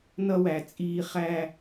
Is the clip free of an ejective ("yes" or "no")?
no